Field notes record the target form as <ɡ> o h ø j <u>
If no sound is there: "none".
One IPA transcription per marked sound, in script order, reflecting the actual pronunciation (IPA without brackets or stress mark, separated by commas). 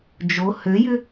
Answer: d͡ʒ, ʏ